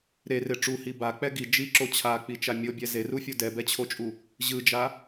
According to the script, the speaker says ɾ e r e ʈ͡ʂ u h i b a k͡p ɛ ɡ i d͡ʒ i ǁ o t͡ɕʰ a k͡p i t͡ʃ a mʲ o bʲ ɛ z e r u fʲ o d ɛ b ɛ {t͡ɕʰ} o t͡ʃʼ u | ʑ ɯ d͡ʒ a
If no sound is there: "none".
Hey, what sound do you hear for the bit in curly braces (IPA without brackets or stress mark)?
t͡ɕʰ